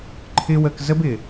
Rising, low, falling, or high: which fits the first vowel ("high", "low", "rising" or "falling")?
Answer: high